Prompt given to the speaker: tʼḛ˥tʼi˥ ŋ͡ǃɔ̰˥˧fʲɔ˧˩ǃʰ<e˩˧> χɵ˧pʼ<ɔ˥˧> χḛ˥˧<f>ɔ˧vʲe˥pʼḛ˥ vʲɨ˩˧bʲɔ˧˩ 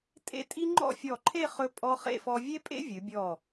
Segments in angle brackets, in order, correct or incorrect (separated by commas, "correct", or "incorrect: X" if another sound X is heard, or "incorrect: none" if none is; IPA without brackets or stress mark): incorrect: e˥˧, incorrect: ɔ˧, correct